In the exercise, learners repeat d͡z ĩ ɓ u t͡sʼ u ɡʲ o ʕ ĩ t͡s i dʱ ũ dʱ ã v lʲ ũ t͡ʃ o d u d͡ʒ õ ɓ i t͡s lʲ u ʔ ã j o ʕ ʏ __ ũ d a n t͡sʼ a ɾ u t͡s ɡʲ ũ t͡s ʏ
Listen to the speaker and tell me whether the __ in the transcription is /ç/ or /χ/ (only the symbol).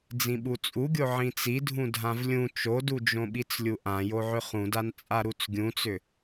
χ